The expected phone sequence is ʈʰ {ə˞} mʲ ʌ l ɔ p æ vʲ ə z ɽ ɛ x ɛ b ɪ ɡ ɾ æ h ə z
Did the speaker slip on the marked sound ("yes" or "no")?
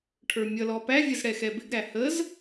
no